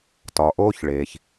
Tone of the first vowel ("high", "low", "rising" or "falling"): low